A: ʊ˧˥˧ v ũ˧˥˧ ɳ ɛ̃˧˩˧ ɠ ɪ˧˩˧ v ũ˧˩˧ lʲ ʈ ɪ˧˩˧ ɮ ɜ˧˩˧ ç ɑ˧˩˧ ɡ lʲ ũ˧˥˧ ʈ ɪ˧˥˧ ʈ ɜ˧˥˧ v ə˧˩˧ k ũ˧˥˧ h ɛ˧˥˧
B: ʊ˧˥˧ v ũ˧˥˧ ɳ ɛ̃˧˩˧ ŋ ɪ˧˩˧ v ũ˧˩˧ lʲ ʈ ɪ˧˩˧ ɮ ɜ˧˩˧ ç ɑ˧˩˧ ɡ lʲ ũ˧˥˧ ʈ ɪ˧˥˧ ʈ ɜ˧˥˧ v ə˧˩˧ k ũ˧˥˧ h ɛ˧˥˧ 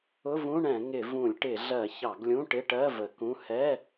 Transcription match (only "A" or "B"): B